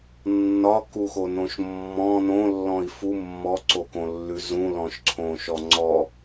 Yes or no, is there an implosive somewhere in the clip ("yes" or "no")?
no